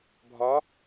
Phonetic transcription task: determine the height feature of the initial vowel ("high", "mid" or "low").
low